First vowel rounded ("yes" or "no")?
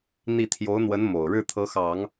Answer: no